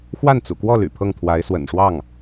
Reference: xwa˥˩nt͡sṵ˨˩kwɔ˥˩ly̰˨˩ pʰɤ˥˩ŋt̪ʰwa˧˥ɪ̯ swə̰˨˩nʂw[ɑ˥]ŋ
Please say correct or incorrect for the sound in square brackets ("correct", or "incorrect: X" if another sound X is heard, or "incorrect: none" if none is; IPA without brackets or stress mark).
incorrect: ɑ˥˩